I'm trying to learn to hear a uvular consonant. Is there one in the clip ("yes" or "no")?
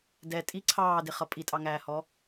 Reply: yes